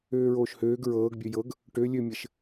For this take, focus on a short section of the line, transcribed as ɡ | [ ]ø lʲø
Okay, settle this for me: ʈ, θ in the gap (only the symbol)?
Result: ʈ